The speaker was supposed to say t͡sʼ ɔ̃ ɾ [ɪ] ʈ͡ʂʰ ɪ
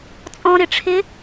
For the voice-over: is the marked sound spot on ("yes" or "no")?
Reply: yes